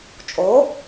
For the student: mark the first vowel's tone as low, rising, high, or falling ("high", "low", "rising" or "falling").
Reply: rising